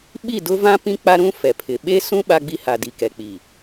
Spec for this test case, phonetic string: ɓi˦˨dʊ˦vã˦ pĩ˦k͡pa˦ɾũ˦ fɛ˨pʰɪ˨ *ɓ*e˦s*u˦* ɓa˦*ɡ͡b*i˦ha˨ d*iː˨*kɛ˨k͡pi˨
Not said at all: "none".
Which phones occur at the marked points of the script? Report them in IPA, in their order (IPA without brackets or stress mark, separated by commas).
ɓ, ũ˦, ɡ͡b, i˨